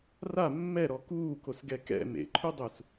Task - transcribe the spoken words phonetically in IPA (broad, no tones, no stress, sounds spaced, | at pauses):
r a mː ɛ ɾ ɔ k uː k o s ɡ ɛ k ɛ̰ m ḛ ǃʰ u dˤ u s